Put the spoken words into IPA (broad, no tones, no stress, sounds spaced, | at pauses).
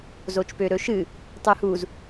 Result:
z o t͡ʃ p ø ɾ ɵ ʃ ɨ | tˤ u h u z